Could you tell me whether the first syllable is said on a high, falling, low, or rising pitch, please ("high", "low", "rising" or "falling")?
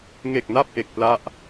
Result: low